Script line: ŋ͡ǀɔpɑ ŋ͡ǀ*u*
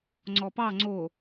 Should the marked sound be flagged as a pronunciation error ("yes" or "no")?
yes